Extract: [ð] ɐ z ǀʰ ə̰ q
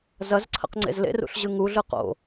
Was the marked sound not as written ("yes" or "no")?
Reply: yes